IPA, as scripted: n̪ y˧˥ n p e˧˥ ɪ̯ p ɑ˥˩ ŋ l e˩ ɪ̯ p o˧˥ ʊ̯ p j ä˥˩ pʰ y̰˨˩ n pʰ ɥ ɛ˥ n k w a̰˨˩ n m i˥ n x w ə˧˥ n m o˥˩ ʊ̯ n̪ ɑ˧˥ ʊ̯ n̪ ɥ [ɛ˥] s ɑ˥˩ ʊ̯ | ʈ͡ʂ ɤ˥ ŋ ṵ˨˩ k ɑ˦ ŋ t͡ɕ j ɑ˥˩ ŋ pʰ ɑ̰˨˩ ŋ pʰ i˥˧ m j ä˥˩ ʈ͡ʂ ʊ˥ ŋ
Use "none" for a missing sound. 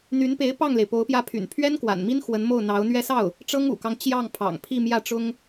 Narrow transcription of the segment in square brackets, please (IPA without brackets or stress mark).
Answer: ɛ˥